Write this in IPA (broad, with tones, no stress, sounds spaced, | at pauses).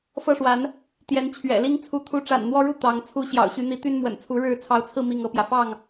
f ɤ˦ ʂ w a˨˦ n | t̪ j ɛ˨˦ n t͡ɕʰ ɥ ɛ̰˨˩ l i˦ ŋ t͡sʰ u˨˦ t̪ʰ u˨˦ ʈ͡ʂ a̰˨˩ n n̪ w ɔ˦ ɻ u˥˨ t̪ ɑ˨˦ ŋ t͡sʰ u˨˦ ɕ j ɑ̰˨˩ ʊ̯ ɕ y˨˦ n̪ i˨˦ t̪ y˦ n m w ə̰˨˩ n t͡sʰ u˨˦ ɻ ɻ̩˥˨ t͡sʰ ɑ˨˦ ʊ̯ t͡sʰ ɹ̩˧ m i˥˨ ŋ ɤ˦ p j ä˨ f ɑ˥˨ ŋ